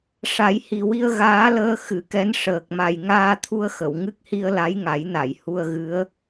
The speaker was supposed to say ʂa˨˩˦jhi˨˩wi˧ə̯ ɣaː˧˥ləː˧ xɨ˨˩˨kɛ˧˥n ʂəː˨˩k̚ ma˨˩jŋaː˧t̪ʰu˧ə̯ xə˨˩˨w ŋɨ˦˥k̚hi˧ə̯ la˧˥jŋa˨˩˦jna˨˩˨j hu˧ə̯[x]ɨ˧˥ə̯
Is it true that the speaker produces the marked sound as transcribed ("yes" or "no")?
no